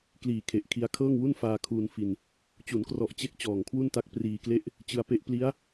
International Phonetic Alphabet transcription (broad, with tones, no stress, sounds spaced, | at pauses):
k l iː˨˩ kʰ e˨˩ ʔ kʰ i˧ a̯ kʰ ɤː˥˩ ŋ w u˥˩ n f aː˧ kʰ uː˧ n f i˧ n | t͡ɕ u˩˦ n k r ɔ˨˩ ʔ t͡ɕ e˥˩ k̚ t͡ɕ ɔː˨˩ ŋ kʰ w u˥˩ n t a˥˩ k̚ p r iː˧ k l e˥˩ ʔ | t͡ɕ ɯ˧ a̯ p e˦˥ ʔ p l i˦˥ a̯